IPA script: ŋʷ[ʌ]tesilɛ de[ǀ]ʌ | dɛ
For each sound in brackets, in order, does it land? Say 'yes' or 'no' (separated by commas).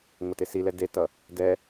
yes, no